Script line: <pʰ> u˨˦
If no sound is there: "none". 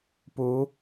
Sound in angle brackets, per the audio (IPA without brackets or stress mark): p